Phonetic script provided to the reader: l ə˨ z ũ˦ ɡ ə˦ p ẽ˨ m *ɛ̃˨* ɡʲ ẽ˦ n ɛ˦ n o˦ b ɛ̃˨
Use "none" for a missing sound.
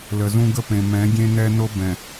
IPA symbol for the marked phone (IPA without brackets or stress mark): ɛ̃˨˦